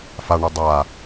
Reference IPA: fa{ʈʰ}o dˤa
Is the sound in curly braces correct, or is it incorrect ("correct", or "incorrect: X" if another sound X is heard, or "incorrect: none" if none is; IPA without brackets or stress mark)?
incorrect: ɳ